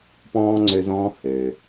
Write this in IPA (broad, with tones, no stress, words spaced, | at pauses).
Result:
pɔ̃ː˧ŋ͡ǀø˧zɔ̃ː˧ hø˩